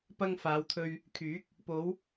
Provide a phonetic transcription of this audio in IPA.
p ɐ˧ ŋ f aː˨˧ w t̪ʰ ɵ˧ ɥ | kʰ yː˨˥ k̚ | p o˨˧ w

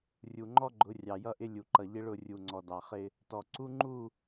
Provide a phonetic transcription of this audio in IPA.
rʲ u˨ ŋ͡ǃ ɔ˦ ɡ͡ǃ ʊ˨˦ rʲ ɑ˨ j ʌ˦ ʔ ɪ˦ lʲ u˨ ǃ ʌ˨ ʎ ɪ˦ ɭ ʊ˦˨ rʲ u˨ ŋ͡ǀ ɔ˨ d ɑ˨ χ ɪ˦ | t ɔ˨ ǀ u˦ ŋ͡ǃ u˦˨

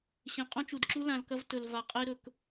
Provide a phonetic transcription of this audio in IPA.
ɕ ẽ˨ qʼ õ˦ t͡ʃ u˨ d ǁ u˦ l ã˨ l k ɐ˦ v t ɵ˨ l v a˨ qʼ e˦ ɾ ɵ˨ k

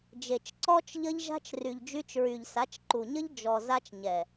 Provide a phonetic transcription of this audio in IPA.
d͡ʒ e˨ t͡ʃ ǀ ɔ˦ t͡ʃ ʎ ə˦ ʎ ʒ a̤˦ t͡ʃ r y˨ ʎ d͡ʒ y˧ t͡ʃ ɹ y˨ ʎ s a˨˦ t͡ʃ ǃ u˨ ɲ ə˦ ʎ d͡ʒ ɔ˨ z a˦ t͡ʃ ɲ ɛ˨

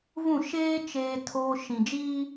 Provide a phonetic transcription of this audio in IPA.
v ũ˦˨ ʃ eː˦ t͡ʃ eː˦ tʰ oː˦ ʃ ĩ˨ d͡ʒ iː˦

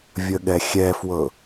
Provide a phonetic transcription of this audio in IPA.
vʲ ə ɠ ɛ xʲ ɛ f w ɤ

